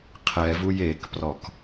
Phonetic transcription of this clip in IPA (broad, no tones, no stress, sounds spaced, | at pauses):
qʰ ɛ v u j e k p r ɔ k